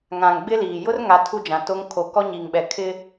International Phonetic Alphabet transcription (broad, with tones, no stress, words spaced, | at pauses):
ŋã˨ŋɡ͡bɪ˦liː˨ jʊ˦rŋa˨ tʰu˦d͡ʒã˨to˦ŋ kʰo˨kɔ˦ɲi˨ŋɓɛ˨ kʰɪ˦